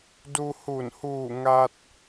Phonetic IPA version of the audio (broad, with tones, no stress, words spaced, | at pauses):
du˧hu˧˩n huː˧˩ŋa˧t̚